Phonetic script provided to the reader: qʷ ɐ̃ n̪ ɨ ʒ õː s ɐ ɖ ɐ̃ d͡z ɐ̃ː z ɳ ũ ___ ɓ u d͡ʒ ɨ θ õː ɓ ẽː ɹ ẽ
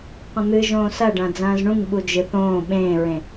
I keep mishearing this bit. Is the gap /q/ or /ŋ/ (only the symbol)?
ŋ